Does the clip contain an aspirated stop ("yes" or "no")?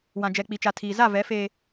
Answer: yes